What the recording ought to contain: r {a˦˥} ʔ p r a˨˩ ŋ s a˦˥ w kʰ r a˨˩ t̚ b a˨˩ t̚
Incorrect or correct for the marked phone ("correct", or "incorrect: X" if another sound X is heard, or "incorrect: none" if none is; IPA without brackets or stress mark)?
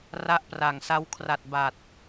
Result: correct